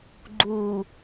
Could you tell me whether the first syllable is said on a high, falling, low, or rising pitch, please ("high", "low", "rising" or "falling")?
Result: low